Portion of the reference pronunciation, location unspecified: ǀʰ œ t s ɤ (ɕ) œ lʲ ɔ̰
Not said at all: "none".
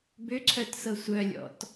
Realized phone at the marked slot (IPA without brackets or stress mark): sʷ